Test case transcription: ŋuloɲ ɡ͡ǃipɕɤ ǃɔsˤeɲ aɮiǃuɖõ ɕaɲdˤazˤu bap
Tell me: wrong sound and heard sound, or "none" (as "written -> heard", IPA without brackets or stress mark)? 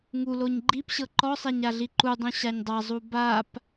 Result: ɖ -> dˤ